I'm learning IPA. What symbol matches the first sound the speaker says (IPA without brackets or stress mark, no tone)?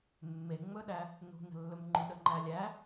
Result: mː